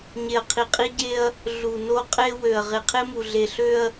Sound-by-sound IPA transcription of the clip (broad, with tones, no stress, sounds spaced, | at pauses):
ɲ e˨ ɐ̯ qʰ i˨ qʼ i˦ ɟ e˦ ɐ̯ | ɮ u˨ n o˦ qʼ e˦ w ø˨ ɐ̯ ʁ e˨ qʰ e˦ m u˨ ɮ e˨ ɬ ø˦ ɐ̯